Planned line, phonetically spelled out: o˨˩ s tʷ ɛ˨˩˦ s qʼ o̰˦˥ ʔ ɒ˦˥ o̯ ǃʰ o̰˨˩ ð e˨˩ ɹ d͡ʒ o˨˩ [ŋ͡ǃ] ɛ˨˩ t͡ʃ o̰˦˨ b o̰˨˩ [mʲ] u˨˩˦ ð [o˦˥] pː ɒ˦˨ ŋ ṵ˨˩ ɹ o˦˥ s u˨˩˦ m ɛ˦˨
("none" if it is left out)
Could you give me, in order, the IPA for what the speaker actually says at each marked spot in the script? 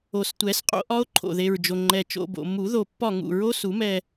ŋ͡ǃ, m, o˨˩

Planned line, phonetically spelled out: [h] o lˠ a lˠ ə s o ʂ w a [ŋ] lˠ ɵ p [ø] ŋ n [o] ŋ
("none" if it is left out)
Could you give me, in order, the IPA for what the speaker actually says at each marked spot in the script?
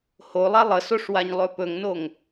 h, ɲ, ɵ, o

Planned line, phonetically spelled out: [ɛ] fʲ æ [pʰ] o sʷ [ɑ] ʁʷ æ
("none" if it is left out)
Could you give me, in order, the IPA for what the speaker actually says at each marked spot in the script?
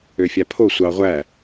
ø, pʰ, ɑ

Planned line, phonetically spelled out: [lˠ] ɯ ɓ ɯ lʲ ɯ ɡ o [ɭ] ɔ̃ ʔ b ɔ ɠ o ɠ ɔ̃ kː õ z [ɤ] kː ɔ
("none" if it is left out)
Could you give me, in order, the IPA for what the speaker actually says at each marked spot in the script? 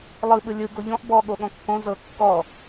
lˠ, ʎ, ɤ

